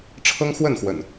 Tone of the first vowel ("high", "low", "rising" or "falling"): high